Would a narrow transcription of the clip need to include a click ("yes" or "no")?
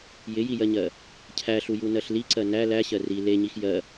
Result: yes